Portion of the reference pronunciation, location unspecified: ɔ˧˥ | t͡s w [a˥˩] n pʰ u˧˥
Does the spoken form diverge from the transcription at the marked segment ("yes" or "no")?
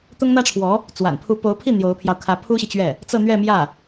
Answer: yes